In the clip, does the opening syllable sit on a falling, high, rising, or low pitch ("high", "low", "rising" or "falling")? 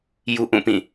high